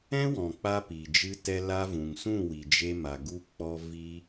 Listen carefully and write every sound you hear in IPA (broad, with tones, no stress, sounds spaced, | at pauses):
ɛ̃˦ w ɔ̃˨ k͡p a˧ p i˨ d͡ʒ ɨ˦ t ɛ˦ l a˧ v ũ˨ ŋ s ũ˦˨ w i˨ d͡ʒ e˧ m a˨ ɡ u˧ k͡p ɔ˧ v i˦